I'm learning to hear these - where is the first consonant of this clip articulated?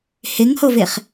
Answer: throat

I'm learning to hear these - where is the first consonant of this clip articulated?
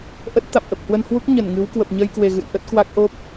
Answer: throat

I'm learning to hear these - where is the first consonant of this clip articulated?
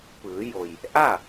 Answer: lips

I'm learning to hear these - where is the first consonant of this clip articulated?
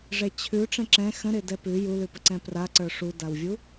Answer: retroflex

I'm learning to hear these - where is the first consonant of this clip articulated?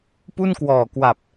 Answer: lips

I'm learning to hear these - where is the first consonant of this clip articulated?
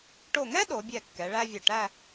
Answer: retroflex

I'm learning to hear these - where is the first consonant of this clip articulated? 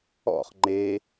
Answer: uvula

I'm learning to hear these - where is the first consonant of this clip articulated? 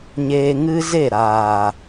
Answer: palate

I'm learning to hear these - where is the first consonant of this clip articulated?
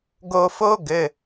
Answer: velum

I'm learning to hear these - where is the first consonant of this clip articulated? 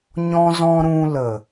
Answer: palate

